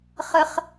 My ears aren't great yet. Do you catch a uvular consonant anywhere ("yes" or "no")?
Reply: yes